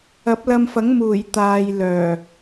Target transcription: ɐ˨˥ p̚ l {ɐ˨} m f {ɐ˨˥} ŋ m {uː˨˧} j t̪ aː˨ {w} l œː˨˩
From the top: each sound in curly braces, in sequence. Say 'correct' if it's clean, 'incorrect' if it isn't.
incorrect, correct, incorrect, incorrect

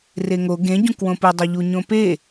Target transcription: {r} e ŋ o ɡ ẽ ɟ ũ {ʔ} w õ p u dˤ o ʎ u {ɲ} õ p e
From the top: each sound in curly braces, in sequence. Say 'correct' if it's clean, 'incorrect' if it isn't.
correct, incorrect, correct

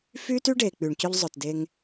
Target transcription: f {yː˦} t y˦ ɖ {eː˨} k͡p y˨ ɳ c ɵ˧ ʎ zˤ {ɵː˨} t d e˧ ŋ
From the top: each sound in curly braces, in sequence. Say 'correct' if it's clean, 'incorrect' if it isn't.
correct, correct, correct

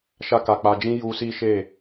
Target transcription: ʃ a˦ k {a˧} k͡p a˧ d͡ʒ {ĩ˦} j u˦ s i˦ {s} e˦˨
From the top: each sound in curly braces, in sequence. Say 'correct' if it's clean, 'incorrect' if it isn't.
correct, correct, incorrect

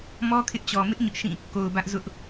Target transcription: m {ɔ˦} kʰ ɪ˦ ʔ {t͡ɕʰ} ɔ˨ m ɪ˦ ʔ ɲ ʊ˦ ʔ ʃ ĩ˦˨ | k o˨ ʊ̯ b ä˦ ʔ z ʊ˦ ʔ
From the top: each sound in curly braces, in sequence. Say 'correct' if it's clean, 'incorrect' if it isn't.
correct, incorrect

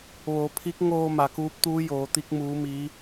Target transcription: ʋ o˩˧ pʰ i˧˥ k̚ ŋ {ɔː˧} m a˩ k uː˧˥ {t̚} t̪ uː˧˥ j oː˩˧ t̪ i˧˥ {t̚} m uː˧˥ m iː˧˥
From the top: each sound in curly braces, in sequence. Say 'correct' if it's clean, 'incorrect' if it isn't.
incorrect, incorrect, incorrect

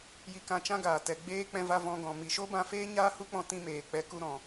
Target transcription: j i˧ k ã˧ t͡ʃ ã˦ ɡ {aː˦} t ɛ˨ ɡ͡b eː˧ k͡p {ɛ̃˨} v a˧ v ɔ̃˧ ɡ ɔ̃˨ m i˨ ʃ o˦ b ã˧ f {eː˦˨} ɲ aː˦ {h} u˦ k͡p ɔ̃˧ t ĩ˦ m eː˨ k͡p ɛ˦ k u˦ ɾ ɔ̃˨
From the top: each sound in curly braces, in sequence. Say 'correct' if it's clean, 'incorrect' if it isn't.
incorrect, incorrect, incorrect, correct

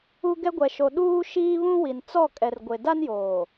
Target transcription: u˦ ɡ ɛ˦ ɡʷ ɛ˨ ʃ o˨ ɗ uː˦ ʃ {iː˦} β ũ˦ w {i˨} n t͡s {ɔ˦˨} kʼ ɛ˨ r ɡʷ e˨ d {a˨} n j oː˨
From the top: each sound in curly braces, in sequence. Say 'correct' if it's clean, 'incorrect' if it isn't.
correct, correct, correct, incorrect

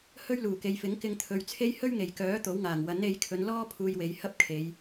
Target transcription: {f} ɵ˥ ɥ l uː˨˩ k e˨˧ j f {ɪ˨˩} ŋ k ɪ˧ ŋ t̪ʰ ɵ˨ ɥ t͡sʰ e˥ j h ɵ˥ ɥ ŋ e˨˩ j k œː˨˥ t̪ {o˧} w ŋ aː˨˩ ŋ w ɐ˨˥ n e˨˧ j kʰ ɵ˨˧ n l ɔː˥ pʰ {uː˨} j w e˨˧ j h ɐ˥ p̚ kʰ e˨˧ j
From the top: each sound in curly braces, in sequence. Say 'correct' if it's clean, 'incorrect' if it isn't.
incorrect, incorrect, incorrect, incorrect

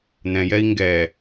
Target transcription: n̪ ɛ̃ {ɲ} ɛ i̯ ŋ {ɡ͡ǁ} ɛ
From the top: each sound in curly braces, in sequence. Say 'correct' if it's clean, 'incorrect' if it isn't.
incorrect, incorrect

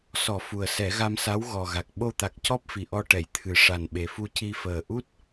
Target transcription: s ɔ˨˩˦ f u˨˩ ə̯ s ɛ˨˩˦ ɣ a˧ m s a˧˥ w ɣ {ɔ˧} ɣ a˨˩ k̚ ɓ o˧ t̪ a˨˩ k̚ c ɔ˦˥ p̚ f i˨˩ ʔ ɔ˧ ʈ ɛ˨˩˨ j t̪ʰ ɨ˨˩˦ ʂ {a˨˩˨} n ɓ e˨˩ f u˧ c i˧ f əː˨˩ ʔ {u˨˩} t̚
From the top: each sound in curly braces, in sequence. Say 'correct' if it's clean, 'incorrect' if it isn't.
incorrect, incorrect, incorrect

